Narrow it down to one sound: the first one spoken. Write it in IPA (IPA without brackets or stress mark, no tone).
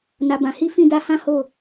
n